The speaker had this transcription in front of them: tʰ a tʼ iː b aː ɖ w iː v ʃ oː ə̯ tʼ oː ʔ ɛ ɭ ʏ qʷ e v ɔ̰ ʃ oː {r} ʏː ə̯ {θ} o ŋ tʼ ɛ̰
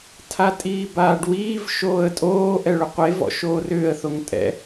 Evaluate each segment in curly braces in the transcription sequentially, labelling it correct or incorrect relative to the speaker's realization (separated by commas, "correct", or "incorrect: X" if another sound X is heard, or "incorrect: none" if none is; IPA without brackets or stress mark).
correct, correct